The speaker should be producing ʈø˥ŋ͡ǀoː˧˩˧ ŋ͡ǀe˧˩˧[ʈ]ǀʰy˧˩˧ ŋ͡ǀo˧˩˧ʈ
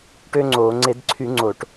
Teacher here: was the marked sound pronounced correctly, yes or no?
no